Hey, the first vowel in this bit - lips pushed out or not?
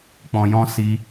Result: yes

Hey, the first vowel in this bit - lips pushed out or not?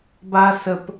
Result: no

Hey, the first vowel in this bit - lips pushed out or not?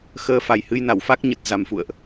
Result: no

